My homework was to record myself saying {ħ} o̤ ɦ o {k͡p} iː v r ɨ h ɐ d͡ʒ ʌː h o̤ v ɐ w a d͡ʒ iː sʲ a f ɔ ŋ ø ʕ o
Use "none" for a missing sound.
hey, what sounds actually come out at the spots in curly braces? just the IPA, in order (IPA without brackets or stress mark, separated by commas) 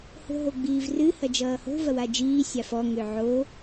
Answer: h, ɡ͡b